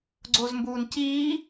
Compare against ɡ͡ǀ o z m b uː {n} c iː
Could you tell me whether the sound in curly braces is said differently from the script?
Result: no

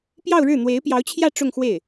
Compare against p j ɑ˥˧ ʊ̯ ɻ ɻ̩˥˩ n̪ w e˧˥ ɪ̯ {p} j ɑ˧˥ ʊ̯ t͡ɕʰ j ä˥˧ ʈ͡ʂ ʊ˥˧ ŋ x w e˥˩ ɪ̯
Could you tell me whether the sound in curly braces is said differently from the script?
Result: no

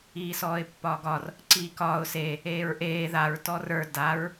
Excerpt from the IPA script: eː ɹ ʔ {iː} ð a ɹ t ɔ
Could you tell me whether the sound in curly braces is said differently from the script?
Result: yes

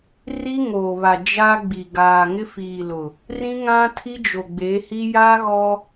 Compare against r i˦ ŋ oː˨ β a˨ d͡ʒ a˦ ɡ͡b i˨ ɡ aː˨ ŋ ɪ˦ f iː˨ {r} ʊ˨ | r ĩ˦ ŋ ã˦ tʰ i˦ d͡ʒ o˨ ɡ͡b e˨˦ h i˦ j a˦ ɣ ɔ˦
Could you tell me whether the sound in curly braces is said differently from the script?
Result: yes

